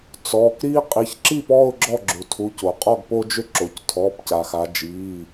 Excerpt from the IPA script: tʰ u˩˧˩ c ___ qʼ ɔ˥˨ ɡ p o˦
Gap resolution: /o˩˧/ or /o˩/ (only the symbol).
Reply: o˩